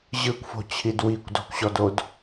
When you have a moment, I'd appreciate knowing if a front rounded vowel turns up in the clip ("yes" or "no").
no